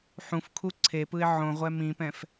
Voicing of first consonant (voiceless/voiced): voiceless